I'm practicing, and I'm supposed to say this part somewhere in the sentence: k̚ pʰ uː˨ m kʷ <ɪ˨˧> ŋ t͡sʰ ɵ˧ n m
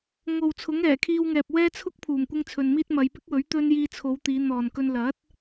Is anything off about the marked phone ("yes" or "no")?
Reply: yes